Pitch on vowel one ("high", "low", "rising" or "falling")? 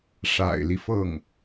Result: low